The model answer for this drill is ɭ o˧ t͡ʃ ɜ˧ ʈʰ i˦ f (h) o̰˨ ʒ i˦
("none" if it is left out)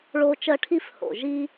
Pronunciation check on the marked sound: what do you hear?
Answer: h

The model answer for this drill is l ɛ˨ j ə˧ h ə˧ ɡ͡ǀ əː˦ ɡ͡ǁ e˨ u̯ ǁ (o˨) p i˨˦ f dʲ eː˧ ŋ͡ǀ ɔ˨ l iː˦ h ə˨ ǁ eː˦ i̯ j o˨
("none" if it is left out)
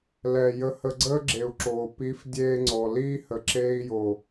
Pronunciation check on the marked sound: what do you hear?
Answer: oː˨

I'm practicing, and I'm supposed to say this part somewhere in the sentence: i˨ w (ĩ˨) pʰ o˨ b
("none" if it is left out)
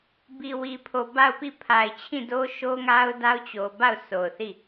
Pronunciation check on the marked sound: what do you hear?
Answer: i˨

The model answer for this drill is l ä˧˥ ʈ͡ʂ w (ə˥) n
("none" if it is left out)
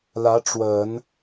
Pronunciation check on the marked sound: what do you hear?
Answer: ə˨˩˦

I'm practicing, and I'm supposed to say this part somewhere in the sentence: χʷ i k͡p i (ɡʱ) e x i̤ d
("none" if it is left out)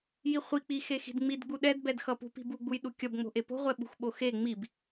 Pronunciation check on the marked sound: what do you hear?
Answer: x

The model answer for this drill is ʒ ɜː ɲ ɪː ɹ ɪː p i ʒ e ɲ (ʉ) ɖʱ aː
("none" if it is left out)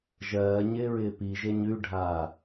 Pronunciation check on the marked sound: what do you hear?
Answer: ʉ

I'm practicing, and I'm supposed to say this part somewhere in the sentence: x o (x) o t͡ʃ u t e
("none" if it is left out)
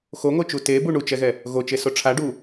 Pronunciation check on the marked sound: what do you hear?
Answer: ŋ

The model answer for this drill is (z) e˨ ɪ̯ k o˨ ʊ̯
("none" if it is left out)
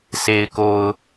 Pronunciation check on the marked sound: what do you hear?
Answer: s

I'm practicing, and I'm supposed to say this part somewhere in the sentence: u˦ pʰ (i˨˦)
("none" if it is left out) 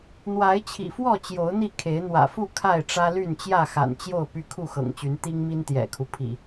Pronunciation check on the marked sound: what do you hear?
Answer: ḭ˨˩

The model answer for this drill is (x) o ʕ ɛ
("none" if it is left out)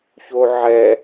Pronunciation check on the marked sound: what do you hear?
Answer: ç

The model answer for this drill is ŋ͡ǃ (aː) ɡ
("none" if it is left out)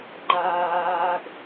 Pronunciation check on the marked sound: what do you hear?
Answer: aː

